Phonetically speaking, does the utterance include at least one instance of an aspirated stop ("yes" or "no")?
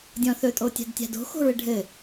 no